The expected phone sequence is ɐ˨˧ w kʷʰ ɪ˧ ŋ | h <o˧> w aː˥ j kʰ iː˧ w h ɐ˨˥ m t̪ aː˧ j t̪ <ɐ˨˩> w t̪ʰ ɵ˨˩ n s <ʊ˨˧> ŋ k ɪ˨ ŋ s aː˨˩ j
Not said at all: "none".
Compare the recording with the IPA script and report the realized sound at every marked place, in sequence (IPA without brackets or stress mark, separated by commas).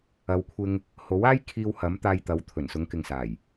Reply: o˨˥, ɐ˨˥, ʊ˨˧